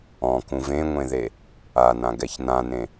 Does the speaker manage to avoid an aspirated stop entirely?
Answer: yes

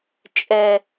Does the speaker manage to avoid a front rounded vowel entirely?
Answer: yes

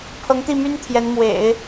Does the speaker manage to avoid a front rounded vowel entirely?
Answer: no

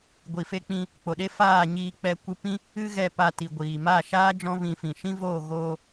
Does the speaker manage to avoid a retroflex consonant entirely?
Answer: yes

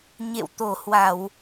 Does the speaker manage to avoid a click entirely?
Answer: yes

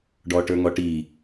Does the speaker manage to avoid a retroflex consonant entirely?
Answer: no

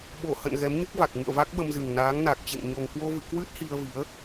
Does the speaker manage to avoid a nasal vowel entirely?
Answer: yes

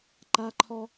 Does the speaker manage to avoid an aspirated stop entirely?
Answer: no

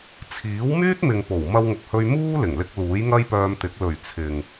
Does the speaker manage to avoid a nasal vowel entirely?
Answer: yes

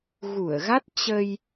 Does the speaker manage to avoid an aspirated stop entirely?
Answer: yes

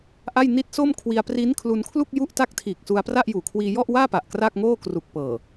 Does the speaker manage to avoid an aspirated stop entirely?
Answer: no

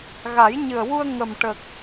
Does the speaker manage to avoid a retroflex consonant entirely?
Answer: no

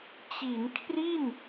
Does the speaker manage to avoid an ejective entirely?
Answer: yes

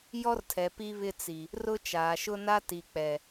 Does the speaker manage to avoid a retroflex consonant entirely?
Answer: yes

